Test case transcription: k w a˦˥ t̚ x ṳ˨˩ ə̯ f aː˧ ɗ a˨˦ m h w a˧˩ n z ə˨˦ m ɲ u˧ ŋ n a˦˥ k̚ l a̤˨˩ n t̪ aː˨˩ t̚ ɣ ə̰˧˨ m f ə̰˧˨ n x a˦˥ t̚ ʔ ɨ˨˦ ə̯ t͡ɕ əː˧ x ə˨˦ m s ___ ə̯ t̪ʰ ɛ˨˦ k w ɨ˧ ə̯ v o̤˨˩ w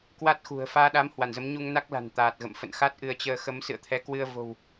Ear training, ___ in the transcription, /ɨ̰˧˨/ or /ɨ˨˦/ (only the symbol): ɨ̰˧˨